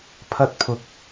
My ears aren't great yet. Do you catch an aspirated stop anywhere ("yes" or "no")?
yes